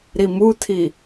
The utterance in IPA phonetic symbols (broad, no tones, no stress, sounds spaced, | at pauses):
ɾ i m u tʰ i